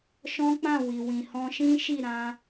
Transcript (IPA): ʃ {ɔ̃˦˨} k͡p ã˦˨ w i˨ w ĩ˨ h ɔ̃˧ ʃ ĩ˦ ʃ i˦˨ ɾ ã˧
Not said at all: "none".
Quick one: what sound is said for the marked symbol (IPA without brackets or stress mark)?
ɔ̃˦